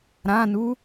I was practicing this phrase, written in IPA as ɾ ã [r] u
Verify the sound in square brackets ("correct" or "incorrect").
incorrect